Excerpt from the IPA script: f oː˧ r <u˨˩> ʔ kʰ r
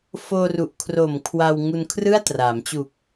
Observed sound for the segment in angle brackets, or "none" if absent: u˨˩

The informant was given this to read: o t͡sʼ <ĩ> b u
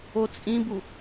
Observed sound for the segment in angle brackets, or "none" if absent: ĩ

